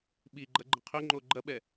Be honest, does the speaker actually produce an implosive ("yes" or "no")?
yes